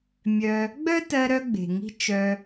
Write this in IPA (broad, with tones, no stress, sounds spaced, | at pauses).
mʲ œ˧ | ɡ͡b œ˦ t ɜ˧ ɾ œ˧ ɡ͡b e̤˨ ŋ i̤˦ t͡ʃ œ˧